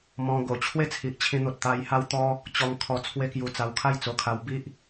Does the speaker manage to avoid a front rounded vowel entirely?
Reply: yes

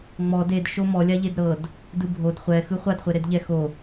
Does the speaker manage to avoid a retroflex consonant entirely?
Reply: yes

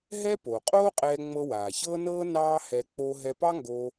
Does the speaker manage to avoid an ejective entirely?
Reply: no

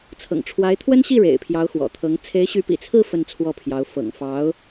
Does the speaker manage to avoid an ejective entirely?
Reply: yes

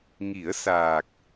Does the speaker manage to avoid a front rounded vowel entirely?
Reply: yes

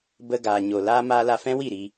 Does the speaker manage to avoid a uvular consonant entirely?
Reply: yes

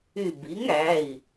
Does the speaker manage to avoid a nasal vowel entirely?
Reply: yes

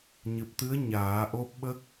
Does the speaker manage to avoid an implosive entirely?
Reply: no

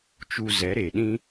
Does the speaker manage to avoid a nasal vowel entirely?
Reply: no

